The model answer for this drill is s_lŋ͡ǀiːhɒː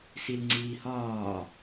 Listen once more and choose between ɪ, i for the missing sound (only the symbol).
i